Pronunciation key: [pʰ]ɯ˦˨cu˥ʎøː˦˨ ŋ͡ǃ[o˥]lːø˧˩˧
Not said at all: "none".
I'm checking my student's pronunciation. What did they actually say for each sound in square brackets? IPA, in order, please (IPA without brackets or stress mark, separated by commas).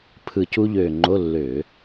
pʰ, o˧˥˧